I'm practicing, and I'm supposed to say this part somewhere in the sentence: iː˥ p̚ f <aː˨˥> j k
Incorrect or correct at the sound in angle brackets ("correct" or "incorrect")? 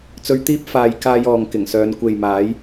incorrect